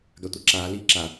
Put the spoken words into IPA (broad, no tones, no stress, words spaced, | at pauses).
ɡatʷaǁaː liːǁa